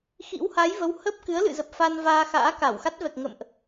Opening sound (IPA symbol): x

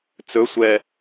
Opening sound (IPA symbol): t͡s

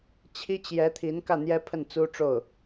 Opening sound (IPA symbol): t͡ɕʰ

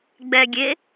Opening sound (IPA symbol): ɡ͡b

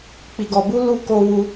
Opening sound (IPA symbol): k͡p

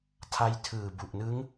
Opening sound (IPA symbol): tʰ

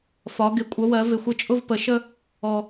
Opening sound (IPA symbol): f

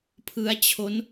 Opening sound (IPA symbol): pʰ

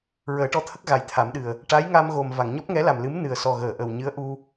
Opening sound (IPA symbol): ɹ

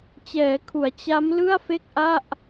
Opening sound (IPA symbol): t͡ɕ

